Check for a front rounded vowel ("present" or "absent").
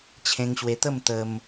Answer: absent